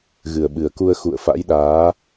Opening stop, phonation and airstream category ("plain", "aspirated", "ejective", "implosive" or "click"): implosive